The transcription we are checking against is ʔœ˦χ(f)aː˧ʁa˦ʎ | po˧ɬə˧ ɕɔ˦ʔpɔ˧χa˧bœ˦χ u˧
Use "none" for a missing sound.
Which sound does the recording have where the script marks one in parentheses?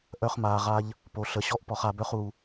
m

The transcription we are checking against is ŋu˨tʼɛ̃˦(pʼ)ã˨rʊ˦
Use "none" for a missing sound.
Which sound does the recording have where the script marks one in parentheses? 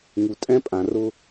pʼ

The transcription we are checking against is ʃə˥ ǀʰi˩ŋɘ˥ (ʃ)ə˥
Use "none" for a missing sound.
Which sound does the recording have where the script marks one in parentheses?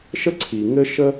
ʃ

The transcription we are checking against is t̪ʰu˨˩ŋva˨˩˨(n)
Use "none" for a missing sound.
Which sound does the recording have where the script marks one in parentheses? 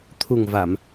m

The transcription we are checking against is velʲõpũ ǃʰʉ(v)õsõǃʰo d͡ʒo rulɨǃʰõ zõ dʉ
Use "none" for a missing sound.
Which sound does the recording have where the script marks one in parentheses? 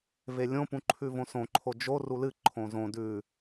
v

